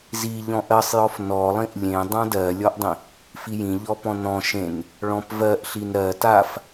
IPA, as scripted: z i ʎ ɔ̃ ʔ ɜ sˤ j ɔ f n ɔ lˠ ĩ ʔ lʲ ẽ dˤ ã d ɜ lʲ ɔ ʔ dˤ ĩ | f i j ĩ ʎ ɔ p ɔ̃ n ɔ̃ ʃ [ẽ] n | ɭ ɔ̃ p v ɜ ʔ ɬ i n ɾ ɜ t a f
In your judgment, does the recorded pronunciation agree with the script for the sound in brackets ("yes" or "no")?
yes